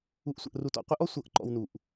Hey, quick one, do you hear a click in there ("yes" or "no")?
yes